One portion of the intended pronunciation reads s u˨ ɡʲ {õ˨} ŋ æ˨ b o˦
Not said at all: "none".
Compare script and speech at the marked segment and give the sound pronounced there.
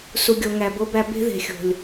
o˨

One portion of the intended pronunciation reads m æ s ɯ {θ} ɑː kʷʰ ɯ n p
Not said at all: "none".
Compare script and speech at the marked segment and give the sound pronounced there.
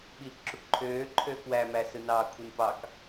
n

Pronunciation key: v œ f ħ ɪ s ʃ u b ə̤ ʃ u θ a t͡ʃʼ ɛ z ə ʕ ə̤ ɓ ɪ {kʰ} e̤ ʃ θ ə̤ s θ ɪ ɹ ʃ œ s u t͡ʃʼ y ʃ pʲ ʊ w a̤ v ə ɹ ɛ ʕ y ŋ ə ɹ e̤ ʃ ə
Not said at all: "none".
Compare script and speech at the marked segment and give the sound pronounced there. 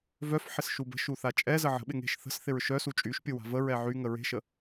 ŋ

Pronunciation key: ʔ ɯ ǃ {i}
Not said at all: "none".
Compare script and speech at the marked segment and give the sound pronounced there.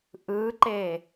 e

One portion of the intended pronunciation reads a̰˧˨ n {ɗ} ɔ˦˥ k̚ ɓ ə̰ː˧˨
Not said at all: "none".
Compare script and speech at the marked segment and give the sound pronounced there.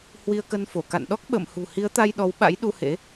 ɗ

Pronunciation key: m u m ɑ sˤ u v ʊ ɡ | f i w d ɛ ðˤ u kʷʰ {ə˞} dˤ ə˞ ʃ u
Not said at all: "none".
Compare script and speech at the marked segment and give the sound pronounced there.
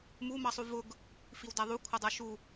ʌ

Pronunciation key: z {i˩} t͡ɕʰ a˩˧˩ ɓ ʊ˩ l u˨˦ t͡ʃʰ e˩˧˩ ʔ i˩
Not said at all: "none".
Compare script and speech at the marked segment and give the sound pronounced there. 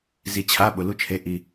i˩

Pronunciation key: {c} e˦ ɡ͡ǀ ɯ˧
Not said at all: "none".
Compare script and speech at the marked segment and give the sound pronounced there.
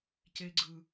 c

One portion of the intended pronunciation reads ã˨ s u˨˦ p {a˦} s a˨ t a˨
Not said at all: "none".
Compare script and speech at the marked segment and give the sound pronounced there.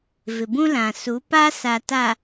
a˦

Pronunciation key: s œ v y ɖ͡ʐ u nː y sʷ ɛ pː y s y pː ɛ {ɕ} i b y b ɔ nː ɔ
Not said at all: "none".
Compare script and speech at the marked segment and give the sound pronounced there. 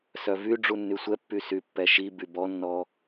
ʃ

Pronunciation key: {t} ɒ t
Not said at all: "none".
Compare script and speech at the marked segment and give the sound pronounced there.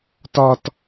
t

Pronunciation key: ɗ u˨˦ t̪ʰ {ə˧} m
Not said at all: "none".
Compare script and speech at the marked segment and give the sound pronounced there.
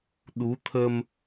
ə˧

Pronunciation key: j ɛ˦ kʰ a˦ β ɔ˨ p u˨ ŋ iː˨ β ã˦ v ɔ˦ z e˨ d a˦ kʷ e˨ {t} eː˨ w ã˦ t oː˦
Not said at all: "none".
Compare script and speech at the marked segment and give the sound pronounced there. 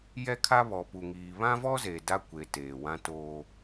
t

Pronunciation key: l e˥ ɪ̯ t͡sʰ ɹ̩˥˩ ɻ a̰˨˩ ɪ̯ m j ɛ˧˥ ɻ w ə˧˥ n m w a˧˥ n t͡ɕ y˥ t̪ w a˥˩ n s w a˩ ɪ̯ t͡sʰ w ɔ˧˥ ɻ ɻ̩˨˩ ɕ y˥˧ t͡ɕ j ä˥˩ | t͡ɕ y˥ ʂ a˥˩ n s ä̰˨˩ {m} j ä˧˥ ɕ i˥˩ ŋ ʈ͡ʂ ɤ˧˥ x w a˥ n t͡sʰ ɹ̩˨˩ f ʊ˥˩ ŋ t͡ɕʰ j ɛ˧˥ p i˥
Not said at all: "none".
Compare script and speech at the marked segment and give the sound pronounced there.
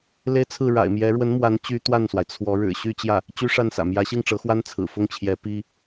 m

